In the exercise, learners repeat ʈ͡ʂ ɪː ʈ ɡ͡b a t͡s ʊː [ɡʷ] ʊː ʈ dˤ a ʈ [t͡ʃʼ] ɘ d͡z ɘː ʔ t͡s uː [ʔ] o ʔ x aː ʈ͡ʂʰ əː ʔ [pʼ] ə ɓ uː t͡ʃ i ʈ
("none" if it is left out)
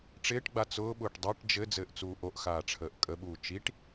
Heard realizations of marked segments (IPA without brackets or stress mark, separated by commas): ɓ, d͡ʒ, ʔ, kʼ